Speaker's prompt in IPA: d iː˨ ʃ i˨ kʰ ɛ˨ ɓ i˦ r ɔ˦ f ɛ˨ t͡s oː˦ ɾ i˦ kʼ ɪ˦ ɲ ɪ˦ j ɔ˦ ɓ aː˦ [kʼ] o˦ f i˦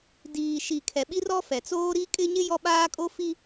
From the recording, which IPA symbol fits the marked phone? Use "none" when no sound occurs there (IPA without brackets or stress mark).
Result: kʼ